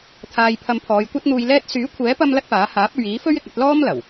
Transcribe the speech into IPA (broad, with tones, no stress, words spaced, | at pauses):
t̪ʰaː˨j pʰɐ˧m pʰɔː˨˧jkʷɐ˥t̚n̪uː˧jlɛː˥t̚ syː˨˥kʷʰɛː˨˥pɐ˧m lɐ˥t̚paː˨˥ haː˨˥p̚ɵ˨ɥiː˨˥fɵ˥ɥ ɪ˧k̚ ɐ˨˥t̚ lɔː˥mlɐ˨˩w